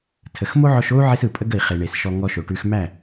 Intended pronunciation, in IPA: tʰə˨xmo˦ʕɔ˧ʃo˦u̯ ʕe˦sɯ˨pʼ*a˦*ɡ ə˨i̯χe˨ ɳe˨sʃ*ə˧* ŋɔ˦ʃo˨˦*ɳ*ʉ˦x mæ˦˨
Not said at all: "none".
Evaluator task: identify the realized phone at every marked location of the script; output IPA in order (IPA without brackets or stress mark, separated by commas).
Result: ə˦, ɔ˧, ʈ